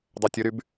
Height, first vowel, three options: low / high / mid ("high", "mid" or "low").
mid